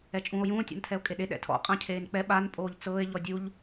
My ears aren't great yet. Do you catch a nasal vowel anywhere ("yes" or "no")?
yes